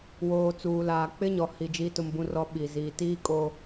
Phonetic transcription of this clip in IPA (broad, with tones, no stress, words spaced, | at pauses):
woː˨t͡suː˨laː˨ k͡pɪ˦ɲɔ˨hi˨ d͡ʒiː˦tʊ˦mbũ˦rɔ˦ ɓi˨ ziː˨tiː˦kʼo˦